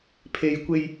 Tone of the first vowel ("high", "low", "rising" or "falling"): low